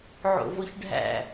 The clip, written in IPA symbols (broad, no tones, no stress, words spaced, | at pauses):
ʕo̰voçɖʱæ̰